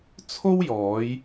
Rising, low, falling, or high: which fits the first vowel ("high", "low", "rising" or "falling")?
high